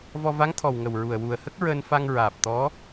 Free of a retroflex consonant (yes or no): yes